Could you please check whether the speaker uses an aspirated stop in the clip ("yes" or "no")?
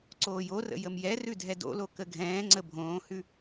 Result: no